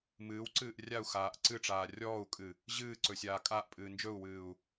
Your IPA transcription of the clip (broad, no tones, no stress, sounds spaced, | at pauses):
m ɨː w ǀ ɨː ʔ rʲ a u̯ x aː ʔ ǀ ɨ ʈ͡ʂ aː rʲ ɔː u̯ kʼ ɨ | ʑ ɨː ǀ ɵ sʲ aː kʼ a ʔ pʼ ɨː n d͡ʒ ɵ u̯ w ɨː u̯